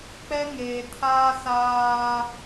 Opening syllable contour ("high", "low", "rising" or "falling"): high